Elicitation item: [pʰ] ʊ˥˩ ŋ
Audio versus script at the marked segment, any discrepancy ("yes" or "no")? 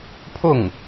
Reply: no